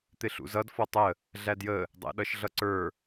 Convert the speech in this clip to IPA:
t̪ ɪ ɬ ṵ z ʌ d f ɔ tˤ ə | ɮ æ d j ə | dˤ æ̰ ɗ ʌ ʃ ɮ ʌ ǀ ə˞

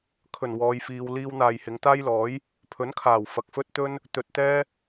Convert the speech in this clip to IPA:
kʰ ɵ˨˩ n w ɔː˨˧ j f iː˧ w l iː˧ w n̪ aː˨ j h ɪ˨˧ ŋ t̪ aː˥ j l ɔː˨˥ j | pʰ ɵ˨˥ n kʰ aː˨˩ w f ɐ˨ k̚ f ɵ˥ t̚ t̪ ɵ˥ n | t̪ ɵ˨ t̚ t̪ ɛː˥

